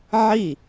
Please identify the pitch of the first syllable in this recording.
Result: falling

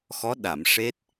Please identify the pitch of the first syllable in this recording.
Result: rising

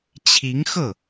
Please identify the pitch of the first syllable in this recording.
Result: rising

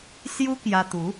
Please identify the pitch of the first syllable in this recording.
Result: high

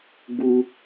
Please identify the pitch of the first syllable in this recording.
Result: high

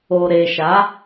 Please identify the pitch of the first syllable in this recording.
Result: low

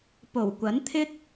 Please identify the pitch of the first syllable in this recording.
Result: low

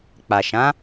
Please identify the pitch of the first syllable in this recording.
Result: low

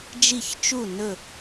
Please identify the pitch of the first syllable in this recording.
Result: falling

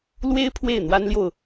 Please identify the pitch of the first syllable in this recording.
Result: high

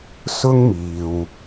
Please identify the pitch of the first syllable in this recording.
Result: high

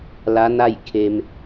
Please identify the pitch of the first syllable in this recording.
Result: rising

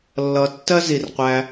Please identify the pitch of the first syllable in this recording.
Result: low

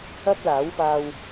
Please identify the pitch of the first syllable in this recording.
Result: high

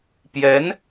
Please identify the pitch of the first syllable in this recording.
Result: rising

